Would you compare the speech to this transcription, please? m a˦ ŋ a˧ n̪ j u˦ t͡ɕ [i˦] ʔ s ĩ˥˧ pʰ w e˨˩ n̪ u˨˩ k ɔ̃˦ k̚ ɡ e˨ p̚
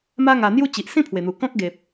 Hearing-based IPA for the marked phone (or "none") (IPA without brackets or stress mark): i˨